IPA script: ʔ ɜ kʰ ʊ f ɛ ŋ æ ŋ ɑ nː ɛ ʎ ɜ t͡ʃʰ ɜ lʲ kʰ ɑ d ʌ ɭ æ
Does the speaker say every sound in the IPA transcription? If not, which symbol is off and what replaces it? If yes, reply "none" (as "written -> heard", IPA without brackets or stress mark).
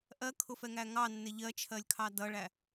none